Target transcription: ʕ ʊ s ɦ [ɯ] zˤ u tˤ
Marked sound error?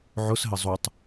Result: yes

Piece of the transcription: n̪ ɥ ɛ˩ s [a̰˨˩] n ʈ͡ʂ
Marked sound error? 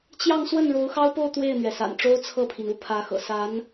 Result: no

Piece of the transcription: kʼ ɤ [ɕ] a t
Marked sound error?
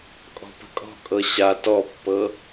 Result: no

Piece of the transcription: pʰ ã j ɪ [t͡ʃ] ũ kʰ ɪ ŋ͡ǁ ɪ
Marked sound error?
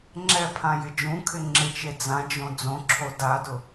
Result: yes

